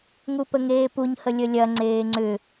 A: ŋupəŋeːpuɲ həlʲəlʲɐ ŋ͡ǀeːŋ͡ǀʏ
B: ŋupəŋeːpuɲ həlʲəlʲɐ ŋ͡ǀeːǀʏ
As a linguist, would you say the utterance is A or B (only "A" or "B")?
A